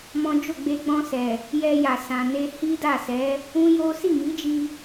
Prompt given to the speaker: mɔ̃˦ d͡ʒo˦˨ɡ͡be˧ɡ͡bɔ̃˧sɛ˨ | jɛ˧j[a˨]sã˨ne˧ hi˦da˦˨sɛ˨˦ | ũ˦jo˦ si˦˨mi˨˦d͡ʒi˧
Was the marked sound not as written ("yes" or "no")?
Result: no